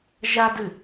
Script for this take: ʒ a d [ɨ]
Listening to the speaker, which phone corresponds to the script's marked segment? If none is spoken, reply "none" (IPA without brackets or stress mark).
ɨ